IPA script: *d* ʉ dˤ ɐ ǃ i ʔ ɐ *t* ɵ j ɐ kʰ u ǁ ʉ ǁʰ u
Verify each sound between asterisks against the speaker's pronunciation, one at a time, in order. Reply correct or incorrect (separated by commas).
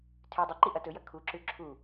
incorrect, correct